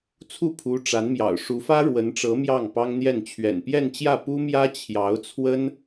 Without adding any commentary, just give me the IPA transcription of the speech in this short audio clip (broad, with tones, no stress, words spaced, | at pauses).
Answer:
t͡sʰu˥˩pʰu˧˥ʈ͡ʂa˧˥nmjɑ̰˨˩ʊ̯ ʂu˧˥fä˥ ɻwə˧˥nʈ͡ʂɤ˧˥ mjɑ˥˩ŋpɑ˥ŋn̪jɛ˥˩n t͡ɕʰɥɛ̰˨˩npjɛ˥˧nt͡ɕjä˥˩ pu˥ mjä˥t͡ɕʰjɑ˧˥ʊ̯t͡sʰwə˥n